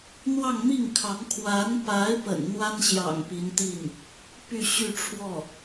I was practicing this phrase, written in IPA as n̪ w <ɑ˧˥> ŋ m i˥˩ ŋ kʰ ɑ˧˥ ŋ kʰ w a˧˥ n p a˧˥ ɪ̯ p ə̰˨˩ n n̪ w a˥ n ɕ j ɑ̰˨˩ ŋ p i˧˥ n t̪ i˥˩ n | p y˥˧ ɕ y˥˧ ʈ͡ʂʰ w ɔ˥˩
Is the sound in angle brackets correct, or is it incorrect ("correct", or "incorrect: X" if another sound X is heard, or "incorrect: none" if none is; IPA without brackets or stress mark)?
incorrect: ɑ˥˧